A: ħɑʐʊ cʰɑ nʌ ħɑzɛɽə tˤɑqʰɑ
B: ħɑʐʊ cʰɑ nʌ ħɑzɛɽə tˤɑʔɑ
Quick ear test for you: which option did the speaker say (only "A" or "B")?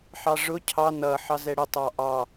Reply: B